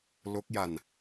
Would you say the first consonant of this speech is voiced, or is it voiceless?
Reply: voiced